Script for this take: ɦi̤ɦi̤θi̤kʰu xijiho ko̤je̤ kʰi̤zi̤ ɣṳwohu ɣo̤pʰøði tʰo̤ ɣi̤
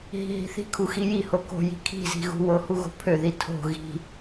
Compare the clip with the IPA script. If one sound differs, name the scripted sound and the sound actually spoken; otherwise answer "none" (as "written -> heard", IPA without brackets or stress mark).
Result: e̤ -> i̤